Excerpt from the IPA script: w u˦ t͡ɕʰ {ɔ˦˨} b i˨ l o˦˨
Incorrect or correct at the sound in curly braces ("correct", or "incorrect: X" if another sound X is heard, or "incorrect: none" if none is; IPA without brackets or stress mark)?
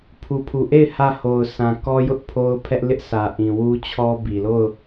incorrect: ɔ˦